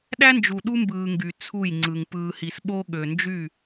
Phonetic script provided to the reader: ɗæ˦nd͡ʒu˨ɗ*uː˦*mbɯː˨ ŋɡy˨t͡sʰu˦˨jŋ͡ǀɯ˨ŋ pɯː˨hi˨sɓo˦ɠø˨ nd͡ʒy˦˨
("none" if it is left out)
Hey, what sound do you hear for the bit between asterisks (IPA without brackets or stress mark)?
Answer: u˦